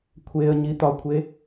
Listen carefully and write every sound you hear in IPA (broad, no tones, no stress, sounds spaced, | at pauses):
kʷʰ e ə̯ ɲ i t̪ ɒ kʷʰ e